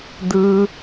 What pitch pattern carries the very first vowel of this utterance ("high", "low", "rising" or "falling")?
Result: high